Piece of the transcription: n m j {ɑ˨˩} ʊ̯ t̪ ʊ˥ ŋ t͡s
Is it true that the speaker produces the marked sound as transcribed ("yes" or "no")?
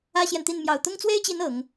yes